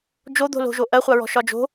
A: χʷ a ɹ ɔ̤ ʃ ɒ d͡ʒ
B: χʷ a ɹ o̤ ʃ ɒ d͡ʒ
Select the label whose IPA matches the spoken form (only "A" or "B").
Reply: A